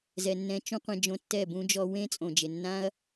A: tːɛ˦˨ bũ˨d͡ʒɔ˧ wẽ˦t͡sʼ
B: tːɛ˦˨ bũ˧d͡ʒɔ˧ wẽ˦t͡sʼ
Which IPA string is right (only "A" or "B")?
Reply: B